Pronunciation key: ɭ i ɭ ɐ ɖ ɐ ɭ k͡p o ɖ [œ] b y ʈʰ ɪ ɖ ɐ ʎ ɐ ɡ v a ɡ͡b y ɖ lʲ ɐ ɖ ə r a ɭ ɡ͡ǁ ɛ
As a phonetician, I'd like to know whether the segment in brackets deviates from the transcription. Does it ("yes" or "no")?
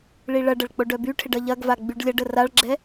no